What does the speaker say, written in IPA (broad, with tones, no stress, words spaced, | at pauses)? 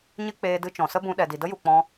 ɲɨ˦ k͡peː˧dɨ˧t͡ʃɔ̃˨sə˦ bũ˧ɗɛ˨di˨ də˦ju˨k͡pɔ̃˧